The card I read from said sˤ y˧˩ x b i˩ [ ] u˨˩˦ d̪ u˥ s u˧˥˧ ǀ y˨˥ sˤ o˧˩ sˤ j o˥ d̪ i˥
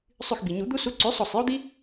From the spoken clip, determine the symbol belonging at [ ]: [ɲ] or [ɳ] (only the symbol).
ɲ